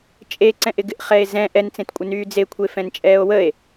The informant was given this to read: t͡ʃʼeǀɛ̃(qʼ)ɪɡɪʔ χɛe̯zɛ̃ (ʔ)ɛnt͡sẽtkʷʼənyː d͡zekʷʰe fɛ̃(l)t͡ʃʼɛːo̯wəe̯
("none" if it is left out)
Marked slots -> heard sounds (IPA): ʔ, ʔ, n

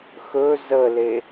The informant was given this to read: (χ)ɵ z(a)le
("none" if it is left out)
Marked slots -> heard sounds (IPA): x, ə

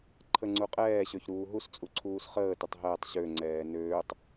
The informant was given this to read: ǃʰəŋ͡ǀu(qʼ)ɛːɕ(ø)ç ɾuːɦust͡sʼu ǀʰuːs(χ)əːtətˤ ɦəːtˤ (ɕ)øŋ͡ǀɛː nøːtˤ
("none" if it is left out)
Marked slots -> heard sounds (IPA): qʼ, ø, χ, ɕ

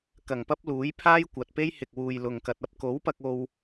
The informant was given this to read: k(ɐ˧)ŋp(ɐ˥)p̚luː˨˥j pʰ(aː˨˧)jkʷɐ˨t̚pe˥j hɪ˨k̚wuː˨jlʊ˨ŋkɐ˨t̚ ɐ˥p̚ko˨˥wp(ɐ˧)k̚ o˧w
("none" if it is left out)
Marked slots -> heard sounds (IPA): ɐ˨˩, ɐ˥, aː˥, ɐ˧

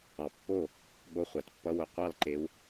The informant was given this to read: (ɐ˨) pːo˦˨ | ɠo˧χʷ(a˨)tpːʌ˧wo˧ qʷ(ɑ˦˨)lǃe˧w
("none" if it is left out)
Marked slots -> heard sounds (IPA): ɑ˨, a˨, ɑ˦˨

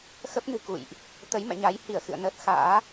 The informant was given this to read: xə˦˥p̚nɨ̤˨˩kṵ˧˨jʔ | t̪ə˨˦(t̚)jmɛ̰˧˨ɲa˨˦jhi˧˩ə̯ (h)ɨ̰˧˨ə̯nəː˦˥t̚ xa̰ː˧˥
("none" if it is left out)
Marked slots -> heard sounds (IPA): none, x

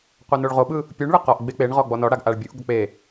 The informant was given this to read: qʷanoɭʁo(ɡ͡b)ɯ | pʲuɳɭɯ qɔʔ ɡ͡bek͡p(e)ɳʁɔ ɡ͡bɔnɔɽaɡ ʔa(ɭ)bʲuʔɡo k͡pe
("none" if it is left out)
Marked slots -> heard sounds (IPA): ɓ, e, ɭ

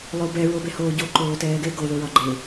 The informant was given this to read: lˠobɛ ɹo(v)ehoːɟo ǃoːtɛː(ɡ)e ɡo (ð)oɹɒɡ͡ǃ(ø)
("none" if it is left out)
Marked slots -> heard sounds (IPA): b, ɡ, ð, e

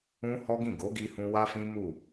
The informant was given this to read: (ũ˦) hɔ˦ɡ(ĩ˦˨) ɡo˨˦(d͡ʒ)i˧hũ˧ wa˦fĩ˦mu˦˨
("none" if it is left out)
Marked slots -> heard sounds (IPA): ũ˦, ĩ˦˨, ɡ

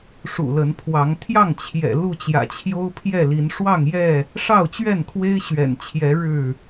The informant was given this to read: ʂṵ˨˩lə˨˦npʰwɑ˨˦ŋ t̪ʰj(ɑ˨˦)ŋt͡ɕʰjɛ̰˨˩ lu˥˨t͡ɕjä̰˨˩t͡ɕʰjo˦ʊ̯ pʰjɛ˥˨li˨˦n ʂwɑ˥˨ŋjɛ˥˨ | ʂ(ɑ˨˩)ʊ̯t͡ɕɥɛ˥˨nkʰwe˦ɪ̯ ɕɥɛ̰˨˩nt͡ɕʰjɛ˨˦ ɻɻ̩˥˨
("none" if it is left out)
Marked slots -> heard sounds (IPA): ɑ˥˨, ɑ˥˨

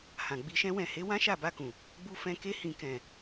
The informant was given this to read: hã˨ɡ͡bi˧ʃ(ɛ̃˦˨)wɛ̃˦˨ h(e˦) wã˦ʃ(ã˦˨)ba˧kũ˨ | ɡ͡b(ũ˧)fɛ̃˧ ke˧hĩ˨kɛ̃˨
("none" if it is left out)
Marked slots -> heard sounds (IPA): ɛ̃˦, e˨˦, a˦˨, u˧

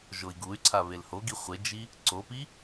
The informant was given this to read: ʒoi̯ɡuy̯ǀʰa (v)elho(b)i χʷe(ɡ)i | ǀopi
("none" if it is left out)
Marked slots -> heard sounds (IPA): β, ɡ, d͡ʒ

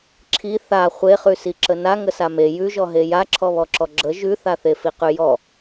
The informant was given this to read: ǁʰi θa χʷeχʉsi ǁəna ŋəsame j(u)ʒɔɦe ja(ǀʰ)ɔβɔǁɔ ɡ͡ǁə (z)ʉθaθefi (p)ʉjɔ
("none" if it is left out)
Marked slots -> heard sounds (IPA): ʉ, ǁʰ, ʒ, q

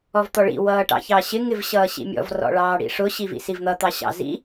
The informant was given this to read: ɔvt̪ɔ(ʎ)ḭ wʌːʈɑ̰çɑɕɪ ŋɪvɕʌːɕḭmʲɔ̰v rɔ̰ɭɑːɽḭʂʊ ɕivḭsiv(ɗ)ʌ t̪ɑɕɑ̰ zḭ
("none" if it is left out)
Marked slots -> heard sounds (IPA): ɭ, n̪

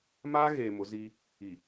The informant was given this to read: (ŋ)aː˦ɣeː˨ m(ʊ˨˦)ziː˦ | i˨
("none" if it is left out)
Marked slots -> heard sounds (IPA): m, ʊ˨˦

